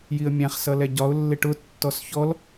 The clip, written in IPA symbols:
j i ə̯ mʲ æ̃ χ s ʌ l ɛ ɟ ɒ ʊ̯ lː ɪ ʈ ʊ tː ɔ s ç ɔ l

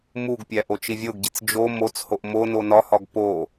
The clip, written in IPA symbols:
m u ɡ pʲ æ ʔ o t͡ʃ i vʲ o ɡ ɟ i t͡s d͡ʒ o m o t͡s h o ʔ m o n o n ɒ h ɒ ɡ p o

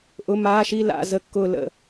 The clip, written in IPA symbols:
ʔ ʊ˧˥˧ m aː˧˥˧ ʃ i˥˧ l a̰˥˧ z ə˥˧ kː ʊː˥˧ l ə̰˥˧

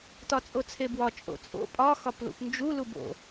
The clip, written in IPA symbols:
t ɒ t͡sʼ o t͡sʰ e b w ɒ t͡ʃʼ o̰ t͡sʼ o̰ pʼ ɒ x ɒ p l ṵ p n d͡ʒ u l u b o̰

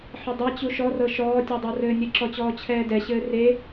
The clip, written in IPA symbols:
ħ ɪ dˤ ɛ t͡ɕ u ʃ ɔ r ɤ ʃ ɔː tʲ ɔ dˤ ɤ r ɘː nʲ ɘ ǁ ɔ t͡ɕ ɔː t͡ɕʰ ɛː d ɛ ɕ ɘː r e

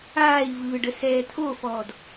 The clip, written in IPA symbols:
aː i̯ v ɯː ɖ ə s ɛː t̪ʰ o f ɔː d

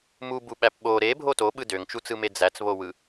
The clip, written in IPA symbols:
m u b u ɓ æ p ɓ o ɾ e bʱ o t o ɓ ɯ d ø ŋ t͡ʃ u t͡s ɯ m e d͡z æ t͡s β o w ɯ

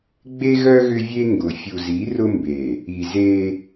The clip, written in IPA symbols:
ɡ͡b e˦ ɣ œ˦ ɣ ʏ˦ vʲ e˦ ŋ ɡ ʊ˨ fʲ u˨ z i˨˦ r ʊ˦ m b e˨ | i˨ z e˦

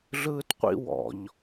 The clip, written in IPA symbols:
ɮ ɯː t qʷ ḭ w ɔ̰ ʎ

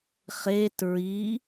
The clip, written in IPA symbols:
χ e t ɹ i

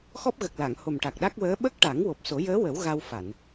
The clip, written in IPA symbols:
x ɔ˦˥ p̚ ɣ ə˨˩ k̚ l a˨˩˨ ŋ h o˨˩ m ʈ a˨˩ k̚ ɗ a˦˥ k̚ w əː˧˥ ɓ ə˦˥ k̚ ʈ a˨˩˦ ŋ w o˨˩ p̚ s o˨˩˦ j əː˧˥ w ə˨˩˦ w ɣ a˧ w f a˨˩˨ n

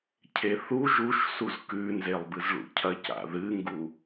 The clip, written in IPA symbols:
cʰ e θ u ʒ u ʃ s u z k ʉ n z e lˠ b ɨ z ɭ ṵ cʰ ɐ c a̰ ð ɨ ŋ ɡ u

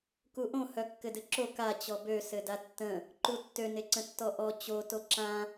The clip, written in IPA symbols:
k u ʔ õ h œ kː ɘ d ɘ ǁ o k a t͡ɕ ɔ b ø s ɘ d a tː ə̃ | ǃ u tː ø n e ǀ ə̃ tː ɔ ʔ ɔ t͡ɕ o t o ǁ ã

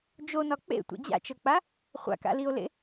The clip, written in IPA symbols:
d͡ʒ o n ɒ k͡p ḛ tʷ ḛ d͡ʑ a̰ t͡ʃ ɤ k͡p a | χʷ a̰ k a̰ l i o̯ l ḛ

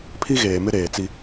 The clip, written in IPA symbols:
pʰ i˦ ɣ eː˨ m ɪ˦ ɾ eː˨ t͡s i˦

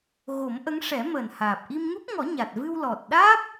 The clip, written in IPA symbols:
ɣ o˨˩˦ m ʔ ə˧˥ ŋ ʂ ɛ˨˩˦ m əː˨˩ n h aː˨˩ p̚ ʔ i˧ m ŋ u˦˥ p̚ ŋ ɔ˨˩˦ ɲ a˨˩ t̚ v ɨ˧ w l ɔ˨˩ t̚ ɗ aː˦˥ p̚

